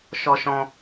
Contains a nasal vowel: yes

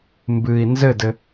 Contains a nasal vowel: no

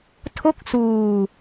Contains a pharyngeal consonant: no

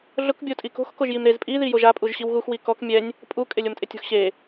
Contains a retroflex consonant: no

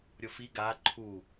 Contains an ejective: no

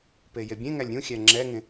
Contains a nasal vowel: yes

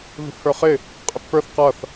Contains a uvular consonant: yes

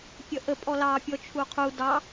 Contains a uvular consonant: yes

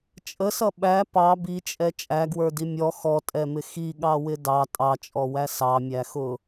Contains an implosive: yes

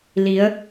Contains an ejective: no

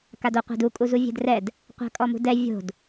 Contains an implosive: no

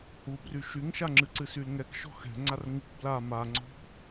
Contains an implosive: no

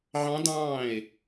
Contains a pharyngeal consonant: yes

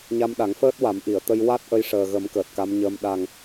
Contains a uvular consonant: no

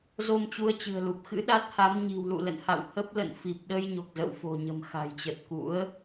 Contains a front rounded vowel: no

